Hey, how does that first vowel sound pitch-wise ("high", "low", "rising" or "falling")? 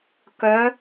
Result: rising